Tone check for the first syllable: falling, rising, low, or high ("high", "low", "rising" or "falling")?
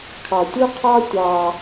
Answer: low